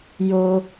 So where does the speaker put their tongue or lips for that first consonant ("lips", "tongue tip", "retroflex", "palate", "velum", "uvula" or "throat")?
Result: palate